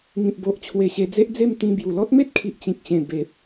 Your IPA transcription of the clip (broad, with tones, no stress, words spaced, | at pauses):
ŋĩ˨p̚bo˨ʔ t͡ɕʰwe˧ɕe˧d͡ze˦ʔd͡ze˥˧m t̪ĩ˧ bju˨˩lɔ˦t̚me˦t̚kʰi˨ʔ t͡ɕĩ˨k̚ɕẽ˨˩ be˨p̚